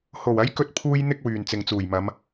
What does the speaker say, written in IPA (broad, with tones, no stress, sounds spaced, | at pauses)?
h o˨˩ w ɐ˨˥ j k ɵ˥ t̚ pʰ uː˥ j n̪ ɪ˥ k̚ w yː˨˩ n t͡s ɪ˨ ŋ t͡s uː˨˩ j m ɐ˨˧ m